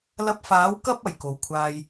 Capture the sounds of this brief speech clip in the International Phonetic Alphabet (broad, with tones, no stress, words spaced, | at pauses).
lɐ˧p̚faː˨˥w kɐ˥p̚ ɐ˨˩jko˨wkʷʰaː˧j